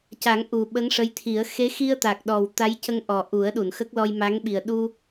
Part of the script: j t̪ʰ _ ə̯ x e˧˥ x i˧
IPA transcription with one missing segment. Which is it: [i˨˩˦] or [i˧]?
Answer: i˨˩˦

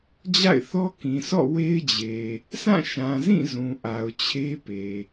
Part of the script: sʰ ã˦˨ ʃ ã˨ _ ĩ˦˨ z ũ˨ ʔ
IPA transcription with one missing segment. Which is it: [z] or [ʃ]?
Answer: z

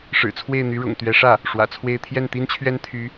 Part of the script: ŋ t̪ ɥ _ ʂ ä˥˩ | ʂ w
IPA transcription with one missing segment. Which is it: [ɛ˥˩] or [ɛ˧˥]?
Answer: ɛ˧˥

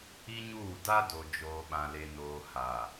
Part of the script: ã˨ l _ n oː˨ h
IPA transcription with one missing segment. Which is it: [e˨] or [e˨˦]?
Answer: e˨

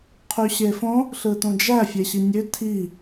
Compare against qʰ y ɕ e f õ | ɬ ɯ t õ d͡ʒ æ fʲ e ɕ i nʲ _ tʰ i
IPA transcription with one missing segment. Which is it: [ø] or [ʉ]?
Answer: ø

